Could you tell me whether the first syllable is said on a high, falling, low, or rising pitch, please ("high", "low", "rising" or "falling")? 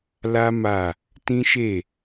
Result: high